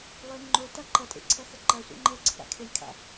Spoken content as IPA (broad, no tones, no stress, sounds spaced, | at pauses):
lˠ e ŋ͡ǃ o t a ǃ ɐ tʼ ḛ ǀʰ ɐ x ə ǃ ɐ sʷ a̰ ŋ͡ǃ ɛ ɡ͡ǀ ə p a̰ kʰ e lʲ kʰ a̰